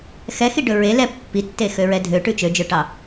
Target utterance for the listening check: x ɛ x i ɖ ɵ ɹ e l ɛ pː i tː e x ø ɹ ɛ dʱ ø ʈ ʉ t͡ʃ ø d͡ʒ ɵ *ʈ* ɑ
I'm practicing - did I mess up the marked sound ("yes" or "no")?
no